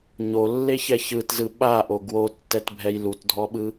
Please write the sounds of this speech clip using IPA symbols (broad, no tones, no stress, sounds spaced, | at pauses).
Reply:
ɲ o lː e ç ɛ ç ɯ t z ɯ ɓ a ʔ o ɡ w o tː ɛ t bʱ ɛ j l u t dʱ ɔ ɓ ɯ